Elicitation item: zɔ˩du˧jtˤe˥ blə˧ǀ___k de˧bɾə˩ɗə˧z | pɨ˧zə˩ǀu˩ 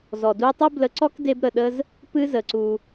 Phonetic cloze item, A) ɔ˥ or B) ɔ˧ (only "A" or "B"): A